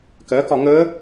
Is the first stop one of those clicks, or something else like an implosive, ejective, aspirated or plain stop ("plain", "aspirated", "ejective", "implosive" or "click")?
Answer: plain